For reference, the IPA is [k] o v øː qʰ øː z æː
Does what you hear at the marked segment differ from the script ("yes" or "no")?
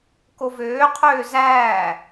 no